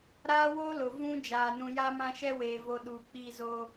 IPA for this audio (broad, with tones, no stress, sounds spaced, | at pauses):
ɾ aː˦ w o˦ l ʊ˨ v ũ˦ d͡ʒ aː˨ n ũ˨ j a˦ m ã˦ ʃ ɛ˦ w eː˨ v o˨ ɗ uː˨ k͡p i˦˨ z oː˦